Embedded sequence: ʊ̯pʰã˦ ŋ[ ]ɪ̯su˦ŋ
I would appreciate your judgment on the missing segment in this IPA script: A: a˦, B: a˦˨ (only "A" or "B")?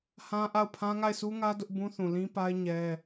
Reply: B